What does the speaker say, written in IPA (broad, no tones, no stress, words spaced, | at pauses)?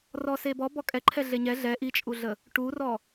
rɔsebɔ bɔkʼɛǃʰɛ ɮeɲɛ ɮɛ ʔit͡ʃʼuɮə | ʈurɔ